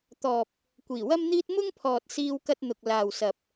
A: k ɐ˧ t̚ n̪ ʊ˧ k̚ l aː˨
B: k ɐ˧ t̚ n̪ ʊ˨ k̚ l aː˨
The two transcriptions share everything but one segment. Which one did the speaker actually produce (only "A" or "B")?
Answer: B